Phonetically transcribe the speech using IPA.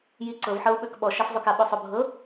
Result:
j i ǀ ɤ v ħ ɤ u̯ ɓ ø k ɓ ɔ ʃ a f zˤ o k a ɓ o sˤ o bʱ ɤ

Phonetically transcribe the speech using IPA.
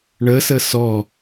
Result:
ɳ ə s ə s ɔ

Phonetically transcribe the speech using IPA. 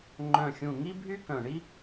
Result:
ŋ͡ǃ œ̃˧˩ xʲ ũ˧˩ ŋ i˥ bʱ y˥ k œ̃˧˩ ɳ i˥

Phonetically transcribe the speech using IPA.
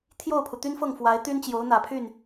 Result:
t̪ʰ j o˥˩ ʊ̯ pʰ u˩ t̪ y˥ n f ɤ˥˩ ŋ f w a˧˥ ɪ̯ t̪ y˥ n t͡ɕ j o˧˥ ʊ̯ n̪ ä˨˩ pʰ y˥˩ n

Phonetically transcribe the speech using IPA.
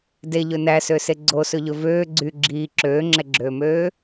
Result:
d e ʎ ɵ n æ s ø s e ɡ͡ǀ o s ɵ ʎ ɵ v øː ɡ͡ǀ y ɡ͡ǁ iː ǁ øː ŋ͡ǁ ɛ ɡ͡ǁ øː m øː

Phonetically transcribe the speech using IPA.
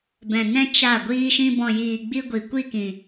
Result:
b ɛ̃˨ n ɛ̃˦ t͡ʃ a˦˨ ɡʷ iː˦ ʃ ĩ˧ b ɔ̃˨ j iː˨ ɡ͡b i˧ ɡʷ i˨ kʷ i˦˨ k ĩ˨

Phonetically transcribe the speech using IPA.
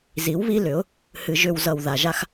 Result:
z i˨˦ w β i˦ l ʏ˨˦ ʊ̯ | h ɨ˨ ʒ ʏ˨ w z ʌ˨ w ð a˨ ʒ a˦ x

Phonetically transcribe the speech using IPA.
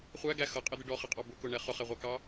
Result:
χʷ æ ɡ æ x ʌ qʼ ɪ d̪ ɪ ɖ ɔ χ ɪ qʼ ɑ b ʊ k ʊ ɳ ɛ χ ʊ χ ɛ ʁʷ ɑ k ɑ

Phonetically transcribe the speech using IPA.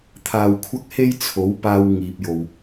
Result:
t̪ʰ aː˧ w kʷʰ ɐ˥ k̚ h e˥ j t͡sʰ o˨˥ w p aː˧ w ŋ iː˨ p̚ j o˨ w

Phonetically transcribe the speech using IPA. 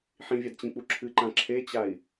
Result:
ħ ĩ vʲ a d t͡ɕ ĩ k͡p u ǁʰ ɨ ǃ ã ǁʰ e t͡ɕ a i̯

